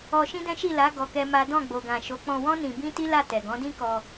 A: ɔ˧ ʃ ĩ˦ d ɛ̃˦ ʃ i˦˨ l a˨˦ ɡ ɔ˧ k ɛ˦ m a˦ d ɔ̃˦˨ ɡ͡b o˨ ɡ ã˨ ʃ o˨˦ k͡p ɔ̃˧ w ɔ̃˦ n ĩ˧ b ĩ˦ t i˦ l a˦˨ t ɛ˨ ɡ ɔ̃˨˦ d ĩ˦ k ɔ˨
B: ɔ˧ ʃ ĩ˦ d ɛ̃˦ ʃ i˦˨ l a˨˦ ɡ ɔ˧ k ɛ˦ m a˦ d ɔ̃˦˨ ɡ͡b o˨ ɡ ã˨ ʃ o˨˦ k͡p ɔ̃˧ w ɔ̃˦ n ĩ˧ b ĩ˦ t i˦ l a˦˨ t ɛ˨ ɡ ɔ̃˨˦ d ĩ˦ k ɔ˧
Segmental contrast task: B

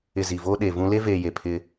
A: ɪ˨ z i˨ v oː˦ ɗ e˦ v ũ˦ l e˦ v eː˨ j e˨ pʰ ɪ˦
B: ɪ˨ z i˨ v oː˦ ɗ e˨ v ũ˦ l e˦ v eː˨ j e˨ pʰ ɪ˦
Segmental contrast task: B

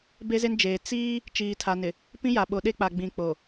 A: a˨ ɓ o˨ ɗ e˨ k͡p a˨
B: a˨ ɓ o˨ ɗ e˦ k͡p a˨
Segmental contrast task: B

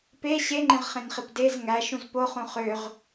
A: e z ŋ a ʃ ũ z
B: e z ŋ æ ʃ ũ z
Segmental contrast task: B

